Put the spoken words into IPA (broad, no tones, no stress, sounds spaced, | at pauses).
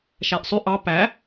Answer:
ʃ æ ʔ sˤ ʉ ʔ ɑ p æ